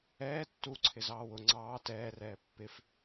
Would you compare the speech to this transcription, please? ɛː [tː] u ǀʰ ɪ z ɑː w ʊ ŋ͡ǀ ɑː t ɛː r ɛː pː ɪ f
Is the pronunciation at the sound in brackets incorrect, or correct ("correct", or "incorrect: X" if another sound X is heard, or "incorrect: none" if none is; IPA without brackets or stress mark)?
correct